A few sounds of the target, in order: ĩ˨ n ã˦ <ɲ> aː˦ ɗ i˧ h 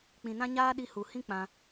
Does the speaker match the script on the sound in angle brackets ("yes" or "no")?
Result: yes